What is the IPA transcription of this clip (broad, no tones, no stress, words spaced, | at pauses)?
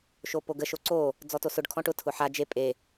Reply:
ʃopoɡə ʃoǀo | d͡zɔtosʊɖ kʰɔ̃ʈʊ tʰʊħa d͡ʒe pʼe